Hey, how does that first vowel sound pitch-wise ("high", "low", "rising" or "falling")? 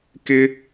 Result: high